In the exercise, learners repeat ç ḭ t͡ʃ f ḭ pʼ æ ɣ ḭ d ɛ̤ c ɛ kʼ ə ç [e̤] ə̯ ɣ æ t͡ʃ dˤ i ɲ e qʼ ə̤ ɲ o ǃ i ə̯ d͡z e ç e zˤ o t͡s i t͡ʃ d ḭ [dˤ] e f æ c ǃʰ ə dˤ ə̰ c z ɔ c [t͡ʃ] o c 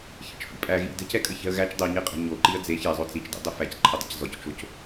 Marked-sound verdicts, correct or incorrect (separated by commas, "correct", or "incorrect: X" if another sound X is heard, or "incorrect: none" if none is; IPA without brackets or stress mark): incorrect: ɛ̤, correct, correct